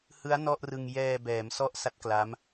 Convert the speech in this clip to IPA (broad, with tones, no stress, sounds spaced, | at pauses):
h ɯ˦˥ a̯ n ɔ˥˩ ʔ r ɯ˧ ŋ j ɛː˧ b ɛː˩˦ m s ɔ˥˩ ʔ s a˦˥ t̚ k l a˦˥ m